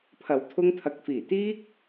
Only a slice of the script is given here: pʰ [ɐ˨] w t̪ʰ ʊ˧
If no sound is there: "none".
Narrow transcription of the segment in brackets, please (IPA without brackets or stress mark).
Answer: ɐ˨